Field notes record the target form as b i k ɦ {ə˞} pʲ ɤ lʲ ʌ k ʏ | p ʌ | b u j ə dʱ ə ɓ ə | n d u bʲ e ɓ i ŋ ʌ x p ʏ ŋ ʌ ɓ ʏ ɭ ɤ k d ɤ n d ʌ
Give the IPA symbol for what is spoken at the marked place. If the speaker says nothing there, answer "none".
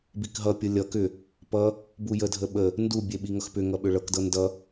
ʌ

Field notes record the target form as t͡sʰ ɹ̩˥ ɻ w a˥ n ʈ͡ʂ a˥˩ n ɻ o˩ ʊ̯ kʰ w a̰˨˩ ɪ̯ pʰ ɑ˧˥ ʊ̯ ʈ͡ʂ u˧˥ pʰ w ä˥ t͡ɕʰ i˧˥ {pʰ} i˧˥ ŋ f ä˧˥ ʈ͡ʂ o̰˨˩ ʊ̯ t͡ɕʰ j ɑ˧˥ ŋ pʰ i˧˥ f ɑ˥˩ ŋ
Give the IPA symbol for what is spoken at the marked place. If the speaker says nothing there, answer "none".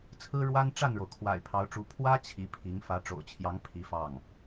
pʰ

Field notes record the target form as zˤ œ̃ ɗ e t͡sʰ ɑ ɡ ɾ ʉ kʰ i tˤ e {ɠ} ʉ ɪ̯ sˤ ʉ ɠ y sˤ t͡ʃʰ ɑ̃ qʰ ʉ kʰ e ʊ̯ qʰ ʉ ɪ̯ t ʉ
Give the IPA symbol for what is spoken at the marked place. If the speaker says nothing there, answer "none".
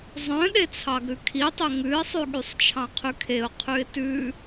ŋ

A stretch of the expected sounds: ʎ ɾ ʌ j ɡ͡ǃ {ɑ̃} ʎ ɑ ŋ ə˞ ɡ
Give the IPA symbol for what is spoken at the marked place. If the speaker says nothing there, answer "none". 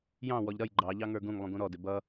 ɑ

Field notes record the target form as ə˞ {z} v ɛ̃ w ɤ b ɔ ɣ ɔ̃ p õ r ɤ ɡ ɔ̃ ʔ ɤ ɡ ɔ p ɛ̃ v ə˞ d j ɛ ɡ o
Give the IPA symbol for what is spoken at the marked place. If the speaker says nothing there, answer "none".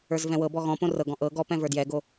z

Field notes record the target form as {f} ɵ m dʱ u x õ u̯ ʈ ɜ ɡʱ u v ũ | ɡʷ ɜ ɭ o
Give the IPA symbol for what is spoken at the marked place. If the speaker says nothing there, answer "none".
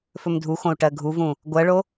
f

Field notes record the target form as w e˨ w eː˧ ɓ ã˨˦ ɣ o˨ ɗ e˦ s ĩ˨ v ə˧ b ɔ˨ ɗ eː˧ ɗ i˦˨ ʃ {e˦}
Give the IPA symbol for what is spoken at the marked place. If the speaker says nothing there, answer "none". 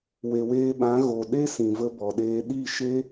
e˦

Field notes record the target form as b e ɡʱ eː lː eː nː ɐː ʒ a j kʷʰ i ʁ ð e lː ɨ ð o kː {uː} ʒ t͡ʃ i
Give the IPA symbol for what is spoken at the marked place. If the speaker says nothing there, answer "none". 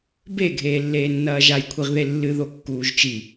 uː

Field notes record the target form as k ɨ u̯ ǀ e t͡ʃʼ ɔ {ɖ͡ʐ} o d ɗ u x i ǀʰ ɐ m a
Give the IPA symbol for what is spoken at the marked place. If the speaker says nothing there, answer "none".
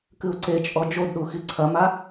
d͡ʒ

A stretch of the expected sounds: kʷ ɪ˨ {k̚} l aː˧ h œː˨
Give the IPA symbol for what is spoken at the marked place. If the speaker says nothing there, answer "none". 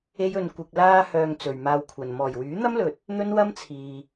k̚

